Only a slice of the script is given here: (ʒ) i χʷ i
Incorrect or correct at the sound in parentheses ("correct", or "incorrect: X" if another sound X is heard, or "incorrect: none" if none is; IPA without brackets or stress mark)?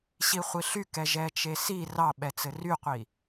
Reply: incorrect: ɕ